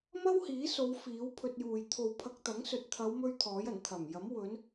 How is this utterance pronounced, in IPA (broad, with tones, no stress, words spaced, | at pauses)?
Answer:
mɐ˥whiː˨˥so˨˧w fiː˨˥wpʰɵ˧t̚juː˨j t̪ʰo˨wpʰɐ˧k̚t̪ɐ˨˥ŋsɵ˨t̚ t̪ʰɐ˨˧wmɵ˧ɥ t̪ʰɔː˨˥jɐ˨˩n t̪ʰɐ˨˩mjɐ˨˥m wɵ˨˧n